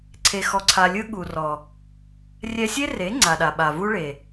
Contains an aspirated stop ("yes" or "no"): yes